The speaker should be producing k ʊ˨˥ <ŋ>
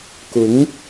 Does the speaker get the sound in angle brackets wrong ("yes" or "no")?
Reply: no